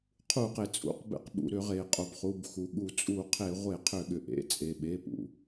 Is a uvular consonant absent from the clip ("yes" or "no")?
no